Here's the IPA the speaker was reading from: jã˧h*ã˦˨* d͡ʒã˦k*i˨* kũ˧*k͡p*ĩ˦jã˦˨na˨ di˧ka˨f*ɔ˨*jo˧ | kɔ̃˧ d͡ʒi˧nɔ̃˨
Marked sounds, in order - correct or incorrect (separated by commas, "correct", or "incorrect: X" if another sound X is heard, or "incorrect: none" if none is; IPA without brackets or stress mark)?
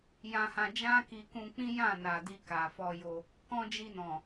incorrect: ã˧, incorrect: i˧, correct, incorrect: ɔ˧